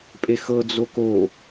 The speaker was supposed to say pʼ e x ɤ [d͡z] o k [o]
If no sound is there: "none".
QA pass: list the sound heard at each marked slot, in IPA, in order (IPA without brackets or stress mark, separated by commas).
d͡z, o